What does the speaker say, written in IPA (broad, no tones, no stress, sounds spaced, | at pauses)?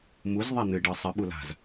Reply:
m u z ðˤ æ n̪ ɨ ɖ ɯ sˤ ɨ ɓ u l a̤ z